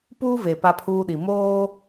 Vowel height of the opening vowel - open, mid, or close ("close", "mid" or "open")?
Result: close